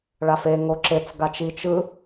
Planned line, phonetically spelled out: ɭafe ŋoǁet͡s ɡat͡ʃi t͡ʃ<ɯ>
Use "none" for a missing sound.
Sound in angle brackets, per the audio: ɯ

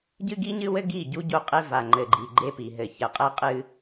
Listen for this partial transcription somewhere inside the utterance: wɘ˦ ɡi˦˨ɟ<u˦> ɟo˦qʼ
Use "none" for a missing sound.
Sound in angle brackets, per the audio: u˦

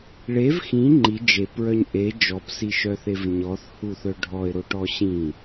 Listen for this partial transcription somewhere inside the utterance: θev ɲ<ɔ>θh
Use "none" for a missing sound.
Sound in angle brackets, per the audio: ɔ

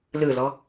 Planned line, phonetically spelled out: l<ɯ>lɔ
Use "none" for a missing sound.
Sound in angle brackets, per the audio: ɯ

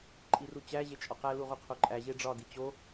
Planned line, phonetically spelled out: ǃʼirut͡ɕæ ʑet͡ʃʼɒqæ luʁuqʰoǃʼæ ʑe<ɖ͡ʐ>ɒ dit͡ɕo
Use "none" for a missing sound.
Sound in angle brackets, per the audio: ɖ͡ʐ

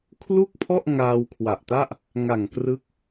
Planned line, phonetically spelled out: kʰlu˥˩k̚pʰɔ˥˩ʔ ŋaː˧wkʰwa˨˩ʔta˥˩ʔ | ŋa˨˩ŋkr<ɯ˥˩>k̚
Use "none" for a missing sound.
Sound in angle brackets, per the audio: ɯ˦˥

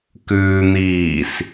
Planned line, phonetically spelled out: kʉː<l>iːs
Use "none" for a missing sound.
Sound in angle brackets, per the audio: n̪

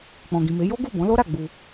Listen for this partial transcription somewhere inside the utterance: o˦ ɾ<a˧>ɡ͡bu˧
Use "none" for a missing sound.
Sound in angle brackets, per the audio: a˦˨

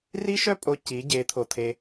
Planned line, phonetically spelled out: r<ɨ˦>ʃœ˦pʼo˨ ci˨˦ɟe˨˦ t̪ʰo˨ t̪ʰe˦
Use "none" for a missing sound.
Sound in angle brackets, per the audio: i˦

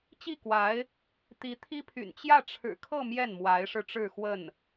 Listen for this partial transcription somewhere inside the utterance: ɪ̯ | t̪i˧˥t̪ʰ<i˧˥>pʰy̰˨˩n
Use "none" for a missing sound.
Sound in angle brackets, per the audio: i˥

